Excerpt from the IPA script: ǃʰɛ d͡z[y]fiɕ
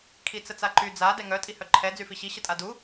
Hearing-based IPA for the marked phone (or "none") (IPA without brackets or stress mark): y